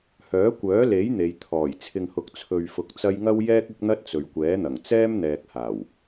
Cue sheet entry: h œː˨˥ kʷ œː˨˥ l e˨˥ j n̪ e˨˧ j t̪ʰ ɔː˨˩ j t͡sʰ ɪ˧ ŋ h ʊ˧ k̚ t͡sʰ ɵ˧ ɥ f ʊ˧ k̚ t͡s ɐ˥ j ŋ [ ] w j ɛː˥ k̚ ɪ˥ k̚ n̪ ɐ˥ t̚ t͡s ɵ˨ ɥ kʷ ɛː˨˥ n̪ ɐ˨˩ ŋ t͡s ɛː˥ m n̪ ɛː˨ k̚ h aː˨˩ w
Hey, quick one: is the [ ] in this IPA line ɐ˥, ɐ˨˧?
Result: ɐ˥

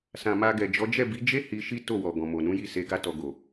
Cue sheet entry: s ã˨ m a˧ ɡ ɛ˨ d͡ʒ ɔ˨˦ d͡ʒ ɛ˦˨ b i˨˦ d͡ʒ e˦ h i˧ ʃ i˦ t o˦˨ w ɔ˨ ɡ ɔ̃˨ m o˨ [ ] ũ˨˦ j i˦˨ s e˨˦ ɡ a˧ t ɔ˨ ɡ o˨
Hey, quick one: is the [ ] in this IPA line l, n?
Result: n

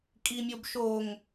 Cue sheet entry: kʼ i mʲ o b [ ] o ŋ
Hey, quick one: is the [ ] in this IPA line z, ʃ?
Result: ʃ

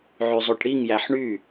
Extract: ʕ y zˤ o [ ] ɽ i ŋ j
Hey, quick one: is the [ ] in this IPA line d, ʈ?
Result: ʈ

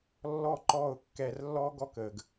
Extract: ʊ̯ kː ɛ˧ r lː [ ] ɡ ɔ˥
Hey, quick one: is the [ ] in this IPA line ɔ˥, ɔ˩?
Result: ɔ˥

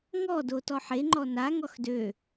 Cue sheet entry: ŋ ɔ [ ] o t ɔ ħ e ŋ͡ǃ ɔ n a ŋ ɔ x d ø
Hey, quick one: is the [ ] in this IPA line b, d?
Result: d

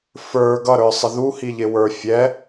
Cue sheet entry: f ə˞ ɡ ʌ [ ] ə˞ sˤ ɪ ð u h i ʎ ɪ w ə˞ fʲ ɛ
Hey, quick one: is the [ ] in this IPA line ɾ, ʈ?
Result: ɾ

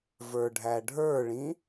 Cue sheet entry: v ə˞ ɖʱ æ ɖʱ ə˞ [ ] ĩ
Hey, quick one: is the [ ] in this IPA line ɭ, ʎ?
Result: ɭ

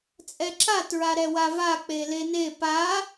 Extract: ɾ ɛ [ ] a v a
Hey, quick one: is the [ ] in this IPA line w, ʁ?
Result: w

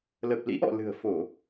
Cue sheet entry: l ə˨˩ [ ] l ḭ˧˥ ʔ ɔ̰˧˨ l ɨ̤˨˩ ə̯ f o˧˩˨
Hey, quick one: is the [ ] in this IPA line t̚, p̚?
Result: p̚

